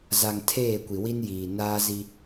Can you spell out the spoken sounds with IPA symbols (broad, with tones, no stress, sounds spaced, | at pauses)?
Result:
z a˨ ŋ tʰ eː˦˨ kʷ i˨ w i˦ n j iː˨ n aː˦ z i˦